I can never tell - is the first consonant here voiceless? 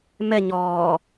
no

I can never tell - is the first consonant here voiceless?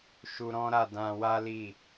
yes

